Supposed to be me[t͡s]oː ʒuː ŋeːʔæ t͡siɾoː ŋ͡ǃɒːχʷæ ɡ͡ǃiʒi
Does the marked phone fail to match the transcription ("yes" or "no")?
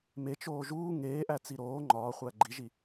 yes